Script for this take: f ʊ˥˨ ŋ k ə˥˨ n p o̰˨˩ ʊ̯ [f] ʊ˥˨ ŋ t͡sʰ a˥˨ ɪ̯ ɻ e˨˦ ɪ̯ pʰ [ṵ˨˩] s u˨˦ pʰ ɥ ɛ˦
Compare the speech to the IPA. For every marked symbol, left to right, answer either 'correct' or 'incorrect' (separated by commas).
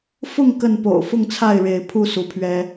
correct, incorrect